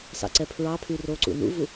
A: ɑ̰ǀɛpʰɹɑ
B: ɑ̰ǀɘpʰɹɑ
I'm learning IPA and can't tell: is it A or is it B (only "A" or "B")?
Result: A